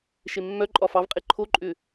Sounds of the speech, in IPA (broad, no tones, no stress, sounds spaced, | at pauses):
ʃ e mː œ ǃʼ ɒ f ɑ v qʼ e ǃʰ o ǃʼ ʏ